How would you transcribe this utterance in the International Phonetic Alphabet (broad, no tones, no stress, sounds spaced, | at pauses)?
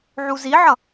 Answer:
ʕ u z i ʕ ʌ